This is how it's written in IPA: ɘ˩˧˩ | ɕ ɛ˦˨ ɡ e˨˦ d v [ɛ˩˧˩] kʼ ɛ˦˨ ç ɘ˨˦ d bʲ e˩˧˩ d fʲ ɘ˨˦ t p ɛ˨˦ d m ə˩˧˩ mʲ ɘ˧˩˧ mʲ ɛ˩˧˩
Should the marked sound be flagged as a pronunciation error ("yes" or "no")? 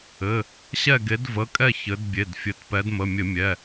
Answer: yes